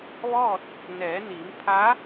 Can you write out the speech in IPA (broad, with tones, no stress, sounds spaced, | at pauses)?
ʋ ɔː˥˨ t̚ | n ɛː˩˧ n iː˩˧ m pʰ a˧˥